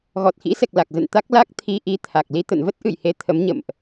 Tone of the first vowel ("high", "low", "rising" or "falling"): low